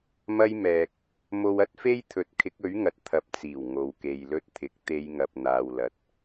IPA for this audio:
mɐ˥jmɛː˧k̚ | mo˧wɐ˥t̚fe˥j t̪ʰɵ˨˥t̚kʰɪ˨˥k̚ɵ˨˥ɥŋɐ˨t̚ t̪ʰɐ˨p̚t͡siː˨˩w ŋo˨wke˨jlɵ˧t̚t̪ʰɪ˨˥k̚ t̪e˨˧jŋɐ˨p̚n̪aː˨wlɐ˨t̚

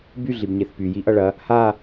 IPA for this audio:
by ɮibɲeθpy jiʔʌɭɐ | ha

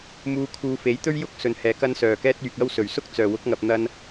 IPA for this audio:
muː˧ kʰuː˨˧fe˨˥jt̪ɵ˥ɥ jʊ˥k̚ sɵ˨˧nhɛː˨˧ kɐ˧nsœː˨˩kɛː˧t̚ yː˨k̚ɐ˥w sɵ˨˩ɥsʊ˥k̚ t͡sœː˨˩wʊ˨˥k̚ŋɐ˨p̚n̪ɐ˧n

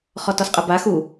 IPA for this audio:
χɔtɔsqʼəba xu

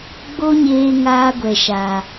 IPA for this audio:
ɡ͡bo˦ɲeː˧ ŋaː˦ɡʷɛ˨ʃa˨

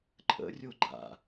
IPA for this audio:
ǃʼə̰ rʲoɡ͡ǃa̰

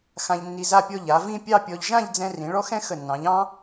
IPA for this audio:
xã˧ʎnːi˧za˥˧pʲɔ˥˧ ʎa˩˧vĩ˥˧ pʲɑ˥˧pʲɔ˧ʎ ʒã˥˧ʎd͡zɛ̃˧ rĩ˩˧ɭɔ˥xɛ̃˥ xə˧˩nːɑ̃˩˧ʎ ɑ̃˥

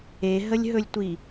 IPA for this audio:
eɦəlʲɦɵlʲtʷi

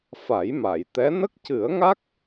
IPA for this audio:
fa˨˩˦j ma˨˩˨jt̪ɛ˧˥ nə˦˥k̚cɨ˨˩˦ə̯ŋa˦˥k̚

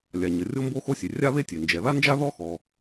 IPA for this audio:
lʲa˩ɲə˩ rʲo˥mbo˥xo˥sʲe˩ rʲa˥βe˥tʲe˩ nd͡ʒɛ˩ða˥nd͡ʒa˥ ðɔ˥xɔ˩

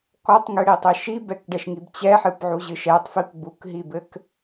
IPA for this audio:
kɔtˤŋɨɽitˤɘ ʃi bɛkɖɛʃŋib t͡ɕɛħɨpʕuʑɨʃ ɛtˤfip ɡ͡bukɦibɘk

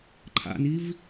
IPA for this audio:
ǃʰa̰niv

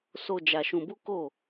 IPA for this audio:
so˧ d͡ʒa˧ʃũ˧bu˦ ko˦˨

